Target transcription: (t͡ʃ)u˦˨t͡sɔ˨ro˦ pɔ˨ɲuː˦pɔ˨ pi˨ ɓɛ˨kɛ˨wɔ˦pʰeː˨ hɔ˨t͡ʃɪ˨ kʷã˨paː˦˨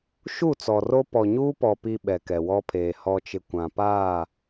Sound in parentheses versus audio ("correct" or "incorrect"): incorrect